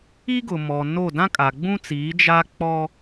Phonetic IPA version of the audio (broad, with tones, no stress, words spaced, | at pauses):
i˦ ɡʊ˨mɔ˨no˦˨ dã˦kʼa˨ɡ͡bũ˦t͡siː˨˦ d͡ʒa˦k͡pɔ˦